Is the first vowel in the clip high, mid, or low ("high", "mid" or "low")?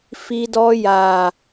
high